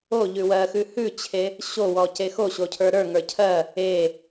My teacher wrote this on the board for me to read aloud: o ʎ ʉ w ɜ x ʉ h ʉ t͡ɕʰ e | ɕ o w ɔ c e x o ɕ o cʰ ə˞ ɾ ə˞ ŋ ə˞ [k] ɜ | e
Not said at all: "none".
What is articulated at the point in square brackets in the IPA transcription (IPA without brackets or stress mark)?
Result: cʰ